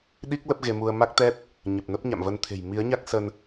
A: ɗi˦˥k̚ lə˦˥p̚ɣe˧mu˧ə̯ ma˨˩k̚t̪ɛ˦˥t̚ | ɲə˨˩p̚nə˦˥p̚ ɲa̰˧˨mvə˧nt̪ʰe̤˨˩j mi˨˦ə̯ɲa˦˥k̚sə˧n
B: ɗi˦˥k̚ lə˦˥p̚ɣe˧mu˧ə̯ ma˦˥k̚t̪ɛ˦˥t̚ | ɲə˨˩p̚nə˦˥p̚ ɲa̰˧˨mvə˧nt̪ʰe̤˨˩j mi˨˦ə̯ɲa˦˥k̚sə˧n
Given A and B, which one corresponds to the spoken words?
B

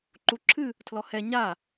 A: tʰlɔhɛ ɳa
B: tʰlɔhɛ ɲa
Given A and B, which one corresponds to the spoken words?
B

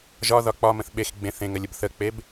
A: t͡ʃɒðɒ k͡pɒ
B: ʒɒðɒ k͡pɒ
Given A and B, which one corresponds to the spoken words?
B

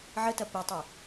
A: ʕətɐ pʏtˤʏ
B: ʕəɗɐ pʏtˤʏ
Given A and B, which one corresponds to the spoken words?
A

